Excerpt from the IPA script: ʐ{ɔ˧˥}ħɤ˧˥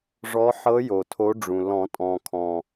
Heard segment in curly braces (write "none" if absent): ɔ˧˥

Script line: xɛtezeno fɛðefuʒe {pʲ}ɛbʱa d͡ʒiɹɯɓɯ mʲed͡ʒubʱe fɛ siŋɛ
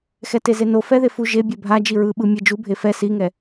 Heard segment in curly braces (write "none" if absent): bʲ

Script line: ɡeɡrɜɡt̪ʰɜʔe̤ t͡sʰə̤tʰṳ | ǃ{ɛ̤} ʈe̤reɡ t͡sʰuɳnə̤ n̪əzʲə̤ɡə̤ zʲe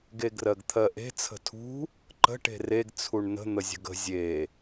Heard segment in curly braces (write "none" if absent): ə̤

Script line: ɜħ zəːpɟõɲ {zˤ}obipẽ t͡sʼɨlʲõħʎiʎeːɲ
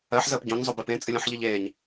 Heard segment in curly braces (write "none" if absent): zˤ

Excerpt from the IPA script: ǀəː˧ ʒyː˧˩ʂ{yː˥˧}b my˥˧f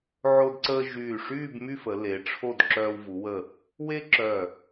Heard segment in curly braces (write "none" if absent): yː˥˧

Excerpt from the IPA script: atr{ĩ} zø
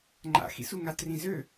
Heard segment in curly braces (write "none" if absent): ĩ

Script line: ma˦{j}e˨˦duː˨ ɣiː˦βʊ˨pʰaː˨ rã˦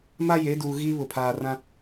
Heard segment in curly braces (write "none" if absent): j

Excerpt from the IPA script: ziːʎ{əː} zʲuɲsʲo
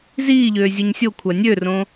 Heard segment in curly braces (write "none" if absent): øː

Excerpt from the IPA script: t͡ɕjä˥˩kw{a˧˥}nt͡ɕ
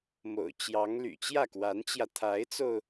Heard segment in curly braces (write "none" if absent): a˧˥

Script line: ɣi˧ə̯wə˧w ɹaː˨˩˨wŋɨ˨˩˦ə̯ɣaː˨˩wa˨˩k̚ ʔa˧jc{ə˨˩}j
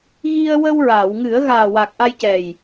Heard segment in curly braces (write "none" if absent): ɛ˨˩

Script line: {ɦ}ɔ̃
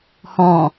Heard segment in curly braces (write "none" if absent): h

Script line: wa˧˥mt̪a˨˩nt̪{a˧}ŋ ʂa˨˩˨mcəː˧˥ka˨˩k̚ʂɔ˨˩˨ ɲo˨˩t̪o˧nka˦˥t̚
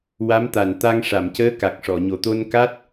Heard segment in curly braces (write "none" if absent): a˧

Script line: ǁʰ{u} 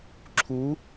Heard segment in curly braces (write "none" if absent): u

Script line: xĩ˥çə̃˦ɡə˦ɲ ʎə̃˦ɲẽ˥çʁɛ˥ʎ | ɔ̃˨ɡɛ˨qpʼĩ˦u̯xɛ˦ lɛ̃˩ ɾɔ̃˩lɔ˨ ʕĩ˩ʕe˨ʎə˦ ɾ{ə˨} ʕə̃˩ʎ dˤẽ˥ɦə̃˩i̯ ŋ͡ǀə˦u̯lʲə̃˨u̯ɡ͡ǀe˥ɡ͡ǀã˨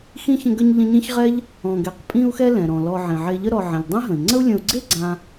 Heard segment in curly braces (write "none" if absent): ɔ˨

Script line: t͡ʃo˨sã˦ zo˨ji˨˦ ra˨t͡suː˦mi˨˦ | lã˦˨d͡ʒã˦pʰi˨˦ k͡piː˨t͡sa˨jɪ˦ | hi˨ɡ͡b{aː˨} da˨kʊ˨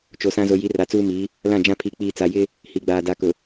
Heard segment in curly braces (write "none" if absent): aː˨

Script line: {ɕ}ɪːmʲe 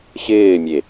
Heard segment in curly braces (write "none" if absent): ɕ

